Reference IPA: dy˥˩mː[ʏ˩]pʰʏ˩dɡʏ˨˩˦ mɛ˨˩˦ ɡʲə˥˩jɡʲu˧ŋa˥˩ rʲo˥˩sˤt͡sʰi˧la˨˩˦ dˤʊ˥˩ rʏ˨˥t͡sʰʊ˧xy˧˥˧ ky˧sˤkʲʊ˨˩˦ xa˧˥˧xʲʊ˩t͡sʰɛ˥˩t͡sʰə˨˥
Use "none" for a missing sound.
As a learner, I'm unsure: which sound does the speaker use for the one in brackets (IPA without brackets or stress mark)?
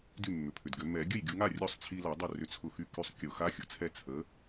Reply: ʏ˩